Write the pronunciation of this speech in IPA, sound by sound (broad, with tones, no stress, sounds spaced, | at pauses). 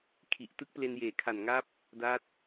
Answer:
kʰ i˨˩ ʔ t ɯ˦˥ k̚ p l e˧ n j eː˨˩ kʰ a˨˩ n ŋ a˦˥ p̚ | d a˦˥ t̚